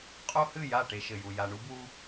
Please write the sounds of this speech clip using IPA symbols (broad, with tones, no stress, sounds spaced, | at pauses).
qʼ o˦ h ɨ˦˨ j a˦˨ ʈ e˦ ʃ ɘ˨ j u˨ j a˨ ɳ u˦ b w u˦